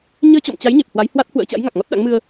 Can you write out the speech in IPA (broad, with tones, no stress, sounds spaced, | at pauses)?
ɲ əː˧ t͡ɕ ɔ̰˧˨ m t͡ɕ a˨˦ j ɲ e˨˩ p̚ h w a˨˦ j h w a˦˥ t̚ h w ə̰ː˧˥ t͡ɕ a̰˧˥ j ŋ a˨˩ k̚ ŋ ɔ˦˥ t̚ ɗ a̰˧˥ ŋ m ɨ˧ ə̯